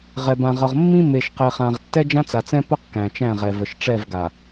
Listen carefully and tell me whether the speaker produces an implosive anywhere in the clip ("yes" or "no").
no